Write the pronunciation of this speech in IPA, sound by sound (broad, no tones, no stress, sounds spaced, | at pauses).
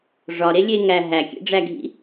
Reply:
ʐ ɒ ɾ e lʲ e ŋ æ ɦ æ kʲ ḛ ɖ͡ʐ æ ɡʱ ḭ